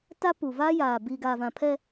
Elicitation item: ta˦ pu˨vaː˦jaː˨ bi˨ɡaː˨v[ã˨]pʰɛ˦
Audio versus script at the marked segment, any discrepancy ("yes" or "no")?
no